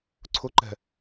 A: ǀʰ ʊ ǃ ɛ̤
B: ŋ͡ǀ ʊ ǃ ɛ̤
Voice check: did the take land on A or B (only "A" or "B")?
A